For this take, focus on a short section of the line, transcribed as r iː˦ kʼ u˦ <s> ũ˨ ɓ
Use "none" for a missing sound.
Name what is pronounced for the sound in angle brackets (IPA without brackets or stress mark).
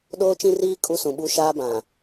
s